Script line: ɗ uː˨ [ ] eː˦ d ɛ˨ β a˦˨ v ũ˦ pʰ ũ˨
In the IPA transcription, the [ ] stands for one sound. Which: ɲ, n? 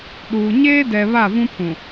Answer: ɲ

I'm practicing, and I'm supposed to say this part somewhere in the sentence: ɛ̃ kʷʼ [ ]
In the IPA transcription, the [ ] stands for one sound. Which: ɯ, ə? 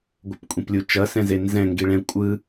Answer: ɯ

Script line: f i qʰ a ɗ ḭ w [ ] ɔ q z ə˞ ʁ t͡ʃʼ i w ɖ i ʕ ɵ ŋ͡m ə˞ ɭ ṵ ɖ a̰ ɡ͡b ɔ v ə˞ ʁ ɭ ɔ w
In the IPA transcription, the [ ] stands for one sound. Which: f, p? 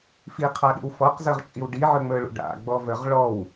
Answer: f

